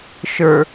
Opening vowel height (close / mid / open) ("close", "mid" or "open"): mid